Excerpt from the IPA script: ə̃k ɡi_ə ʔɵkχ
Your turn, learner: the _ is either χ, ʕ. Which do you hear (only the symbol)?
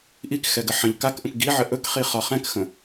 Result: ʕ